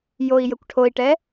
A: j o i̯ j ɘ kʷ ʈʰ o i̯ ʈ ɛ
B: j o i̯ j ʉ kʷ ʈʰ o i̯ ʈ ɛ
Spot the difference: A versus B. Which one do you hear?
A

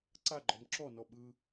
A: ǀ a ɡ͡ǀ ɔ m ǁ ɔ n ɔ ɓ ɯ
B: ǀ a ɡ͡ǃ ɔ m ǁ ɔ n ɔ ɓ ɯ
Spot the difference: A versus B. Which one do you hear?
B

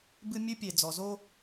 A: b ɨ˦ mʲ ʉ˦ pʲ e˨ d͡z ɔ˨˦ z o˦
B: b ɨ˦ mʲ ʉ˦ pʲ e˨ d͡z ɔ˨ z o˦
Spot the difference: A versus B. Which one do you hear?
B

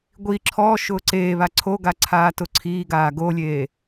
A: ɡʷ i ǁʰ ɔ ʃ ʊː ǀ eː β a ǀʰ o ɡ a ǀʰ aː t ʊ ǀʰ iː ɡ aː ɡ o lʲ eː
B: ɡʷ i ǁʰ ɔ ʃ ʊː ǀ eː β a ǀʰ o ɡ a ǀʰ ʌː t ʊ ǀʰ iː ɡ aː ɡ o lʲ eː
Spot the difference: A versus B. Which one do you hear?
A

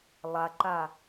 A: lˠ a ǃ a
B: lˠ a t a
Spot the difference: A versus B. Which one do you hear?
A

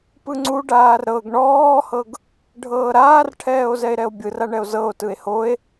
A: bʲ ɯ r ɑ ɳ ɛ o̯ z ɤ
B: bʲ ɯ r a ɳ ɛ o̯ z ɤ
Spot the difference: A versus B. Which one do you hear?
B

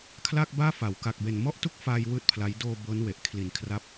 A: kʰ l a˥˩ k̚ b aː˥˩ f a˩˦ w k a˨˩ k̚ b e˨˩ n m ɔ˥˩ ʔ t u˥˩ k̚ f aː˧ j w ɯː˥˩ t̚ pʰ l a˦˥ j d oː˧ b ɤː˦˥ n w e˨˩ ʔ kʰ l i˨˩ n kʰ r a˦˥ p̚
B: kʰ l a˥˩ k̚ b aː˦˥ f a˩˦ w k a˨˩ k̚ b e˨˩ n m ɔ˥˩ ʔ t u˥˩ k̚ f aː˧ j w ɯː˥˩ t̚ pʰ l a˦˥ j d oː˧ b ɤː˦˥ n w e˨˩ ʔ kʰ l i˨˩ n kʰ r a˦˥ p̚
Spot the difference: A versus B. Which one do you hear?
A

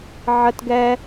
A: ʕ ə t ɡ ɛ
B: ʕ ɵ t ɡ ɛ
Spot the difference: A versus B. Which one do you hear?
A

